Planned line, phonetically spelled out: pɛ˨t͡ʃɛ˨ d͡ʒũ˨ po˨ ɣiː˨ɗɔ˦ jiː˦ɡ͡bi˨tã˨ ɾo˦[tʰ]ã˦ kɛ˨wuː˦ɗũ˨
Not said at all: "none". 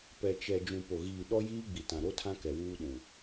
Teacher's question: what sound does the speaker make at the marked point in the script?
tʰ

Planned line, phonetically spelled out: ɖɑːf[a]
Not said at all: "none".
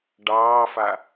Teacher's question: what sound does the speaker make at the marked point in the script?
a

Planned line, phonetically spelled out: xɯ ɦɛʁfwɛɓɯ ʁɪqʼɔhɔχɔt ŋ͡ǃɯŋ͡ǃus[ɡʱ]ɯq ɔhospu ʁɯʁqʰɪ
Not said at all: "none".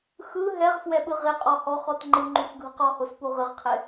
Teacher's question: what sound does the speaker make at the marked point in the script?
ɡʱ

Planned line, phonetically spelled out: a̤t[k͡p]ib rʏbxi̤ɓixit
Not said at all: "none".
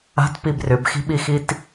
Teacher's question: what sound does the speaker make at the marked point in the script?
p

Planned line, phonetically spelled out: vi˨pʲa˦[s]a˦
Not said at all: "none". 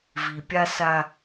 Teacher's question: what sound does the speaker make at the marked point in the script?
s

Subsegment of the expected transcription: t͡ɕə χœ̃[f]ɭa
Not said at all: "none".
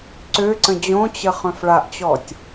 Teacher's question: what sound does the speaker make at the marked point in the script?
f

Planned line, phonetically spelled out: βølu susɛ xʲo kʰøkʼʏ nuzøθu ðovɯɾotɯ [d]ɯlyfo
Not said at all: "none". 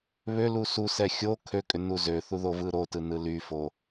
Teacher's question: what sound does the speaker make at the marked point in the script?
n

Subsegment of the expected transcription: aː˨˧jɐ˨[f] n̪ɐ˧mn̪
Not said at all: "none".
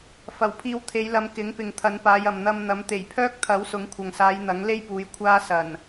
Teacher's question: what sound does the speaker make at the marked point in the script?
m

